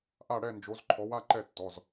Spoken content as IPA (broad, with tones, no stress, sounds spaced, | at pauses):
ʔ a˥˨ ɽ ɛ˥˨ n d͡ʒ o˨˦ z ǃʰ ɔ˨˦ w a˥˨ ǃ ɛ˥˨ tː ɔ˩˧˩ z